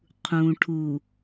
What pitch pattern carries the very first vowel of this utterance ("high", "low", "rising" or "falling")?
low